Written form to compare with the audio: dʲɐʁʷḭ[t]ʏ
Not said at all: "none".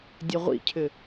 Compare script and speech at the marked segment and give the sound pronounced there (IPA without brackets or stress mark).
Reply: cʰ